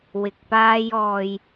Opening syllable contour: low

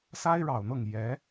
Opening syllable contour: high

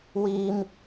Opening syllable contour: high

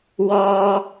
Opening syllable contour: high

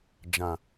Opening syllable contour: low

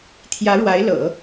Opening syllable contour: rising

